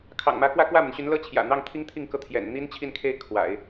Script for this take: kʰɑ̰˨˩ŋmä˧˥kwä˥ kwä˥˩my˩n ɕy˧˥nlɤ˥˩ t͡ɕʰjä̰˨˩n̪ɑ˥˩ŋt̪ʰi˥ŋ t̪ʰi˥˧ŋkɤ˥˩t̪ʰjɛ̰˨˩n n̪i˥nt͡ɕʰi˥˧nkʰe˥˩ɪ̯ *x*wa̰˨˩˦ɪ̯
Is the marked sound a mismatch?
yes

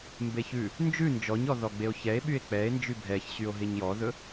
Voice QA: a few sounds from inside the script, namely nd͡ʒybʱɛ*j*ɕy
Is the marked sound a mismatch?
yes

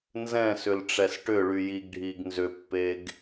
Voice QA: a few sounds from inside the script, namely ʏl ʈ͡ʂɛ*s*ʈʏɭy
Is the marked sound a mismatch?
no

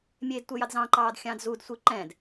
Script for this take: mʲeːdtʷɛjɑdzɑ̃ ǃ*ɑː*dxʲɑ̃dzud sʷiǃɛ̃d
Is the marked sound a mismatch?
no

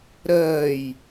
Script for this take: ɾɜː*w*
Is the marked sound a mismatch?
yes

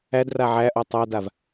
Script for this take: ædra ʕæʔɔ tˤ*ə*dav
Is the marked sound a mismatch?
yes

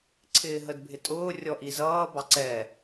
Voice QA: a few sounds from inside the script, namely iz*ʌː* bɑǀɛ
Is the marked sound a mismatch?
no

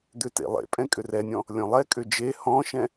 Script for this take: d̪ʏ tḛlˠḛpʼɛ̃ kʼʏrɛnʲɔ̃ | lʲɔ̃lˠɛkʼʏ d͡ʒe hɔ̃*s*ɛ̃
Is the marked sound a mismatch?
yes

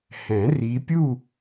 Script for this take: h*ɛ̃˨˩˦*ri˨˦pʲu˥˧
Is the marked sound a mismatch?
no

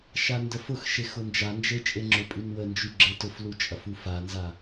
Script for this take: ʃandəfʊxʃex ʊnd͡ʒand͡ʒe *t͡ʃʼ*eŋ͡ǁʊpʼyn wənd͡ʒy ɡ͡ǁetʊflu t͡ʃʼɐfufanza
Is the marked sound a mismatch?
no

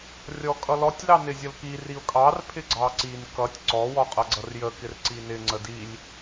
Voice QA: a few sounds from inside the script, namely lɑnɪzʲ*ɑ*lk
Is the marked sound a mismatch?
yes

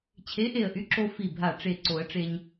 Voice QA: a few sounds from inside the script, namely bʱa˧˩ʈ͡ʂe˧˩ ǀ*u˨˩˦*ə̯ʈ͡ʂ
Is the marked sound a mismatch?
yes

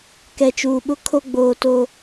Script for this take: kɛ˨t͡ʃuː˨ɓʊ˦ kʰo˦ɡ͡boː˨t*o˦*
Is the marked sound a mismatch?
yes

